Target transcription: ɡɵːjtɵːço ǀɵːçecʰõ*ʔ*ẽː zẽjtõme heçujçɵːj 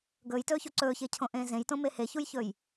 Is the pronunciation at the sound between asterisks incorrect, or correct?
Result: correct